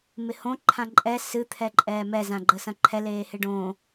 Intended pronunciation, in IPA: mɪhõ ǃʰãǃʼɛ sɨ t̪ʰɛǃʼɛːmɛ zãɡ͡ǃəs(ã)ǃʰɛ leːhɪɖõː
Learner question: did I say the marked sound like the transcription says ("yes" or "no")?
no